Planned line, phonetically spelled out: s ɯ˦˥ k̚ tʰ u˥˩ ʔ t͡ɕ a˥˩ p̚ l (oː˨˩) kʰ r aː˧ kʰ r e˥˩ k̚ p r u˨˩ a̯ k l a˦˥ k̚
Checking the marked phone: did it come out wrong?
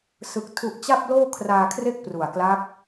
yes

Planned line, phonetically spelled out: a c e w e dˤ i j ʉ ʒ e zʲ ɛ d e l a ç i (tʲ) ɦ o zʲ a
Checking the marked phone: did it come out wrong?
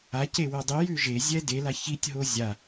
no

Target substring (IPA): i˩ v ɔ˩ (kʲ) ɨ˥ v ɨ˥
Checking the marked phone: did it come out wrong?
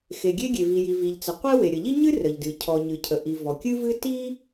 no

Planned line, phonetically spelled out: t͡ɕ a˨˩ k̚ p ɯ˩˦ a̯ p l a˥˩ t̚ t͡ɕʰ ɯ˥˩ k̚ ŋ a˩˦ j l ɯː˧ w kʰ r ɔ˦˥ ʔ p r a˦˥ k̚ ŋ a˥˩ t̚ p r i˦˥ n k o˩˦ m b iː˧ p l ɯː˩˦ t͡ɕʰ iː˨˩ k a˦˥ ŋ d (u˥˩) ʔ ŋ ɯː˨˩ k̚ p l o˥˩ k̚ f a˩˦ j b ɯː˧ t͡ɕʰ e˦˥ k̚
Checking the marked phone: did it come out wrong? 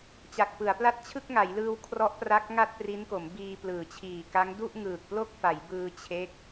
no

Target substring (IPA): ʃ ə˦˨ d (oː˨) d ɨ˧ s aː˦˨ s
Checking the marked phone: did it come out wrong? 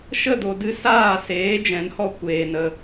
yes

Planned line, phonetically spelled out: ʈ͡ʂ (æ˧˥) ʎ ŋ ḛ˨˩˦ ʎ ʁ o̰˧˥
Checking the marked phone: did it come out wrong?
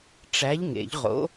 no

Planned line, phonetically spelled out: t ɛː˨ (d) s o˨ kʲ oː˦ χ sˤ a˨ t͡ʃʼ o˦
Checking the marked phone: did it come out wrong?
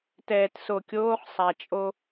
yes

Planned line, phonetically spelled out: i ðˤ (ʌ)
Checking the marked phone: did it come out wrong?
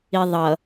no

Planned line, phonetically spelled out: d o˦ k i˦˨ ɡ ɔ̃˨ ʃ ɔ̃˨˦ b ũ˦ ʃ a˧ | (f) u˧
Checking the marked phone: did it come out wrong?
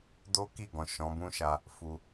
no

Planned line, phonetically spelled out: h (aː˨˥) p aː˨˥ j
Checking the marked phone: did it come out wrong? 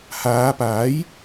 yes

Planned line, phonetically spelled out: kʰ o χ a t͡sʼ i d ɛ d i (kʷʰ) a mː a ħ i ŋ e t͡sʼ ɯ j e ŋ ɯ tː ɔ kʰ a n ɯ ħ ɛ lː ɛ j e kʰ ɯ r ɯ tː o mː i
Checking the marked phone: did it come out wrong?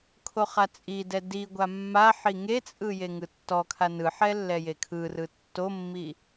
yes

